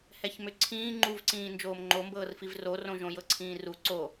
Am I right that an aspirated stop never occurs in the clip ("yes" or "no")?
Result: no